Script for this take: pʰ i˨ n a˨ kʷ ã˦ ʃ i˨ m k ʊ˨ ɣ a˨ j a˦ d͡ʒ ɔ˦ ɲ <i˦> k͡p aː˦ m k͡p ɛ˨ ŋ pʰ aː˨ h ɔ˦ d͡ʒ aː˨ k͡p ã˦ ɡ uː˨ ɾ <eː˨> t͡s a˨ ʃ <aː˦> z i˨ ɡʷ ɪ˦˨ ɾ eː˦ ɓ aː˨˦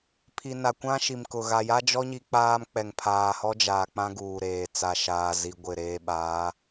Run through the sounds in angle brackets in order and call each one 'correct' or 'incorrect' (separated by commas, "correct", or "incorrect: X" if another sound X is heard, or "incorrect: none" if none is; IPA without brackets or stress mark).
correct, correct, incorrect: aː˨